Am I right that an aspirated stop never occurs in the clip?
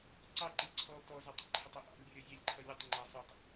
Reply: no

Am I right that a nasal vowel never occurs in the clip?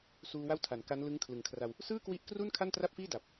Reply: yes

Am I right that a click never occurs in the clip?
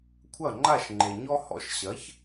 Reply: no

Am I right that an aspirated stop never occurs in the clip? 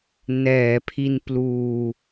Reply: no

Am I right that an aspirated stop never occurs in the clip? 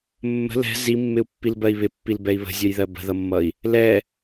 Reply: yes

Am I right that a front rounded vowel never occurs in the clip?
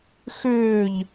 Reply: no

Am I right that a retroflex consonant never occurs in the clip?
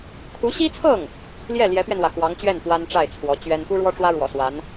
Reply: no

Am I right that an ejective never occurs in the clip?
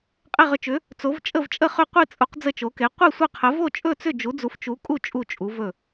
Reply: no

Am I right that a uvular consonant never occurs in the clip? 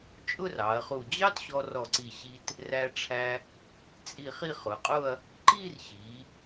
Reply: no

